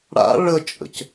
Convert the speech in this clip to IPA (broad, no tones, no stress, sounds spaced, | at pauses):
ɽ a̰ ɭ ə t͡ʃʼ ə̰ c